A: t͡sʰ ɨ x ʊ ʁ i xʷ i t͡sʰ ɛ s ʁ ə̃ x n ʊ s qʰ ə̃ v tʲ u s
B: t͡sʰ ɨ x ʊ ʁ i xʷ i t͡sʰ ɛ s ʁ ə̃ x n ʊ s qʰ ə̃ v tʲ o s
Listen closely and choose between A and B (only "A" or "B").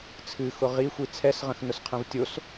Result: B